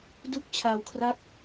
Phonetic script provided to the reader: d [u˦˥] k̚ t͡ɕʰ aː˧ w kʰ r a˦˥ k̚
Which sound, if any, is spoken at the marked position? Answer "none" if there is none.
u˦˥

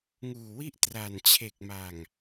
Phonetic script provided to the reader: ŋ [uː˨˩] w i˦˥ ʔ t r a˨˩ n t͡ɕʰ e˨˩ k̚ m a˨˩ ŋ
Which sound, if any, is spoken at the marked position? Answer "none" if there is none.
uː˨˩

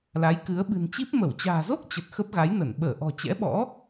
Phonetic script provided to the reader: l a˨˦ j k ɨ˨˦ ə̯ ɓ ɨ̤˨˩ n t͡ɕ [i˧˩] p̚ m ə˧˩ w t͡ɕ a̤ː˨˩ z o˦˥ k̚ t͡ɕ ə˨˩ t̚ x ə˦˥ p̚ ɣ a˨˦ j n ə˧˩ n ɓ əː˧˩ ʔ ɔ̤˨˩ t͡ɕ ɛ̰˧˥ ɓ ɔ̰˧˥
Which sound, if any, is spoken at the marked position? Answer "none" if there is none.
i˦˥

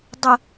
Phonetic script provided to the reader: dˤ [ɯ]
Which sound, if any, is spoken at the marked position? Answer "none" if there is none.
ə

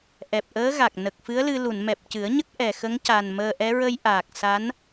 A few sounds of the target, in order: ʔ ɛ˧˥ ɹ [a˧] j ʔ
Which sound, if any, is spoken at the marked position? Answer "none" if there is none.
ə˧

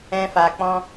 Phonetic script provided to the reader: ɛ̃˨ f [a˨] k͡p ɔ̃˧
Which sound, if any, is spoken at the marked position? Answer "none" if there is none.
a˨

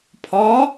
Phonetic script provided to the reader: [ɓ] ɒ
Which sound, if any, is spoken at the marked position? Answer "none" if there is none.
pʰ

